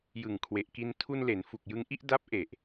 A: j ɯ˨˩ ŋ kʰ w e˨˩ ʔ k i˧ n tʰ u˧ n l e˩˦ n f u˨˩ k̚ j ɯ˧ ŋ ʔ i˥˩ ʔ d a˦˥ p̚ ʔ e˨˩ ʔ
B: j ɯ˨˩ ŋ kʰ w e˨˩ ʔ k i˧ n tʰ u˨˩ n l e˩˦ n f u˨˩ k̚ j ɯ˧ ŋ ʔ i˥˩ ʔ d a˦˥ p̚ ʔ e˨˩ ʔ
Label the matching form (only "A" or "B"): A